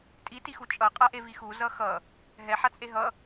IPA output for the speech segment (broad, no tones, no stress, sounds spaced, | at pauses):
tʼ i t i x u t͡ʃʼ ʌ qʼ a ʔ e v i x u z ʌ x ʌ | ɦ ɛ ħ a t͡sʼ e ɦ ʌ